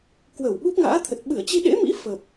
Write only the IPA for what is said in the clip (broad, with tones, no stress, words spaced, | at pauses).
kwə˧˩wɓu˦˥p̚ŋa̰ː˧˥t̪ʰə˨˩t̚ ɓɨ˧˩ə̯t͡ɕi˧ɗḛ˧˥mḭ˧˥ fə˨˩p̚